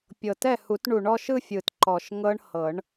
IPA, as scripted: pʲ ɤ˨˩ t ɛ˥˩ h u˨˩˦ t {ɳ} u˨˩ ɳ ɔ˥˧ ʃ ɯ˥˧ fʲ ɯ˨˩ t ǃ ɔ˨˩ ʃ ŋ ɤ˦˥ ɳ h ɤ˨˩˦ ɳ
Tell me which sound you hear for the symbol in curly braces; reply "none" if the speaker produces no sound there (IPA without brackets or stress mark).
ɳ